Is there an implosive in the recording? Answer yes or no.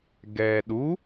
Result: yes